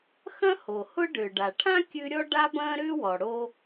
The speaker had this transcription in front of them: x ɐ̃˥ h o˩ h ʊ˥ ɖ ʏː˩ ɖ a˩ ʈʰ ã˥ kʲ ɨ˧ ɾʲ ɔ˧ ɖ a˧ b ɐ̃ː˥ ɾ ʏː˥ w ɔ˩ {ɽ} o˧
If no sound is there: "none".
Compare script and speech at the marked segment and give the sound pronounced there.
ɽ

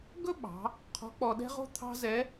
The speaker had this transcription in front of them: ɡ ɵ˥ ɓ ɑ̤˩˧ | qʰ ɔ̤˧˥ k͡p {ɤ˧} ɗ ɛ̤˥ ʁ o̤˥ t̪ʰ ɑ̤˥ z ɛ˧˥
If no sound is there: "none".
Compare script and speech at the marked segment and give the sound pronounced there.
ɔ˧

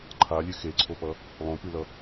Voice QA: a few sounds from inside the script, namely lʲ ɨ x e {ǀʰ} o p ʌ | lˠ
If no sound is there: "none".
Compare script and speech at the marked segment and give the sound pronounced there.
ǀʰ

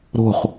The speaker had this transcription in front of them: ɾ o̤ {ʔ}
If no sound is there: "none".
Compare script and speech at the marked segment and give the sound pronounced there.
χ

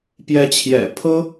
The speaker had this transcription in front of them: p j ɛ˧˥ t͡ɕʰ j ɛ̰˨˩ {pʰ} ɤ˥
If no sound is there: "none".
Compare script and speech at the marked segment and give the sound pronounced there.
pʰ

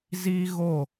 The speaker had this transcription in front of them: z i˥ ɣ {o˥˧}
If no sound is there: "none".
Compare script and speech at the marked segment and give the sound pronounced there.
o˥˧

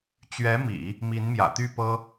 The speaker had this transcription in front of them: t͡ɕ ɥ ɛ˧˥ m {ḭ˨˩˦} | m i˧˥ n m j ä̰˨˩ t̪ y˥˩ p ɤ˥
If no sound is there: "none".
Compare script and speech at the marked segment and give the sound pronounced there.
ḭ˨˩˦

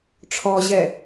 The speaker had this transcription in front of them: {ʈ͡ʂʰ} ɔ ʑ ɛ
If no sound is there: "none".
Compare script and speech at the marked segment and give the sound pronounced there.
ʈ͡ʂʰ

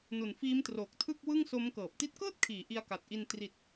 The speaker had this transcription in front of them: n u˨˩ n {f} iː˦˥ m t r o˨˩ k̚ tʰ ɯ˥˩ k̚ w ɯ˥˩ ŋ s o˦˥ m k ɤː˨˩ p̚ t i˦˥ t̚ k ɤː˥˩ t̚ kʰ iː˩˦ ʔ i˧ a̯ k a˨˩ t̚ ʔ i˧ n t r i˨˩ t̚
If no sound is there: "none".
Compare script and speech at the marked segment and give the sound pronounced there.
f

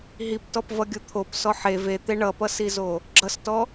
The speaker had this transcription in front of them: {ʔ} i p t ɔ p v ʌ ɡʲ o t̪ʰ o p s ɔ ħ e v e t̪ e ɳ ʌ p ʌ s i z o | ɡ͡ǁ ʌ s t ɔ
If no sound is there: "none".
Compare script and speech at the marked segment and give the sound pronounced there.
ɦ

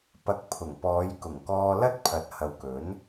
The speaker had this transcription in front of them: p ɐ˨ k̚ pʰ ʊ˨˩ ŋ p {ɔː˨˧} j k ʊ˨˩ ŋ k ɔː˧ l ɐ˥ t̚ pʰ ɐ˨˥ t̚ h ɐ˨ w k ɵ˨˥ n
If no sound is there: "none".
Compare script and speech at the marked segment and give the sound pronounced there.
ɔː˨˧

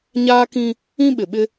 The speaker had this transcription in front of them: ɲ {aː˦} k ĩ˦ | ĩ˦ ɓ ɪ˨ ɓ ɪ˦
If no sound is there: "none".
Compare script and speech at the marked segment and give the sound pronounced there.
aː˦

